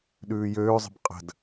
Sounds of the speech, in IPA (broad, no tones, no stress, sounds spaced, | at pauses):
ɗ ʉː j øː zˤ ə̤ b qʼ ə̤ d